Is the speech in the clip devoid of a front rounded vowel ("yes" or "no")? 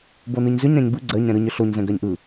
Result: no